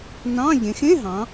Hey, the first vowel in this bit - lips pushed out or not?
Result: no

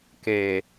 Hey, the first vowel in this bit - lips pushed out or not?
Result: no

